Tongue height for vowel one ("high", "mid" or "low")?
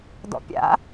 mid